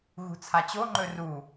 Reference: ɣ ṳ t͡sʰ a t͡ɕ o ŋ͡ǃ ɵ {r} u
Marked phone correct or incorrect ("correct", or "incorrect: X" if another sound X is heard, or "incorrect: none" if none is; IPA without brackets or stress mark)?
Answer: correct